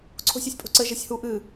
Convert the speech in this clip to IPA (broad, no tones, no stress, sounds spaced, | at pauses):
ǀʰ o̤ sʲ ɔ sʲ pʼ o̤ ǀ ɘ ʒ ɘ sʲ h u ʔ ɨ